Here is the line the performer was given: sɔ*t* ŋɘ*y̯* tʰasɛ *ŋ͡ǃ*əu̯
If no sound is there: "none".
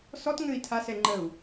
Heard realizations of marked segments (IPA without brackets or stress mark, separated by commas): t, i̯, ŋ͡ǃ